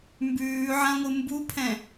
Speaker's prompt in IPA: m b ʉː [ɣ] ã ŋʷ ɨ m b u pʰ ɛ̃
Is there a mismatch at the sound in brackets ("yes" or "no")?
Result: yes